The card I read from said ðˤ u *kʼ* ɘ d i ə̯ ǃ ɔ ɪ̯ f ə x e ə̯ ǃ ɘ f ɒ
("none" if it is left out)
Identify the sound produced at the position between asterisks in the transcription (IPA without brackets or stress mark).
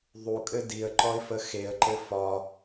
kʼ